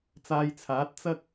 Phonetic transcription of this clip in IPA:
t͡s aː˧ j t͡sʰ aː˨˥ t̚ t͡s ɐ˥ k̚

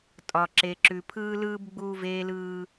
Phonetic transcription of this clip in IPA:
tʼ ɒ˨ ǁ e˨ ǁ ʉ˨ pʰ ɯː˦ l ɯː˦ b ɡ͡b uː˦ v eː˦ l ɯː˦

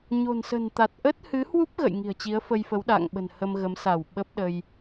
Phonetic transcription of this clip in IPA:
ɲ o̤˨˩ n s ə̤˨˩ n t̪ a˨˩ t̚ ʔ ə˦˥ t̚ h ɨ˨˦ h w u˦˥ p̚ ɣ ə̰˧˨ j ŋ i̤˨˩ ə̯ t͡ɕ i˨˦ ə̯ f ə˧ j f ə˨˦ w ɗ a̰ː˧˨ ŋ ɓ ə̤˨˩ n h ə˧ m ɣ ə˨˦ m s a˧˩ w ɓ ə˦˥ p̚ ɗ ə˧ j

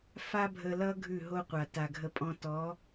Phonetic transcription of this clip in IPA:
f a˦ bʱ ə˧ l ʌ˦ ɡʱ ʉ˦˨ ɦ o˦ qʷ a˨ t a˨ ɡʱ ə˧ pʼ ɔ̃˧ t ɔ˨˦

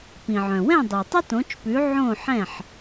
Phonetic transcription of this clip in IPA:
p ĩ˩ ʕ œ̃˩ w ɛ̃˥˩ dˤ i˩ tˤ ə˥ t õ˩˥ t͡ʃ p ʉ˩˥ ʕ õ˥˩ ħ ɛ̃˥˩ ħ

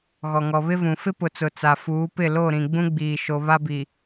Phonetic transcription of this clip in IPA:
ɣ ɔ˨ ŋ ɔ˨ β ɪ˦ v ũ˨ f ɪ˦ p ʊ˨ t͡s ʊ˨ t͡s a˨ f uː˨˦ p ɪ˦˨ l o˦˨ ɾ ĩ˨ ɡ͡b ũ˦ ɡ͡b iː˨ ʃ o˨ β a˦ b i˨

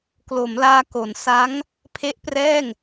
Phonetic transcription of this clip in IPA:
k l o˩˦ m l aː˧ k o˩˦ n s a˦˥ ŋ | pʰ e˦˥ ʔ p r ɛː˥˩ ŋ

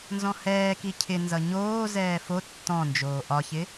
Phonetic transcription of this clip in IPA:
n z ɔ̃ h ɛː k i cʰ ɪ n z ʌ ɲ oː z ɛː f o tː ɔ̃ n d͡ʒ oː ʔ ɒ ç ɪ

